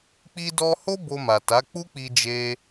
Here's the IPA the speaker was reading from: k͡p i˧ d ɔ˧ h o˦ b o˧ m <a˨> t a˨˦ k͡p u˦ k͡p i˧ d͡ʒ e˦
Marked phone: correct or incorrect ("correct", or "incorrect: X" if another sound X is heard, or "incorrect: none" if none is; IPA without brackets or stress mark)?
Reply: correct